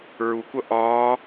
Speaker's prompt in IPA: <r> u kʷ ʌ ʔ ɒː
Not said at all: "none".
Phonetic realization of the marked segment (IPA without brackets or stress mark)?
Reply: ɹ